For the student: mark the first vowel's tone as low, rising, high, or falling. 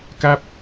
falling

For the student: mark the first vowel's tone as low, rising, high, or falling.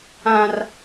high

